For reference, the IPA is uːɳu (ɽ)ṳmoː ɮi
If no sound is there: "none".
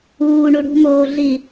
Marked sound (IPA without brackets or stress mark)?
ɽ